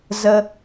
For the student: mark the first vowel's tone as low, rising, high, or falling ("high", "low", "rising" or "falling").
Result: low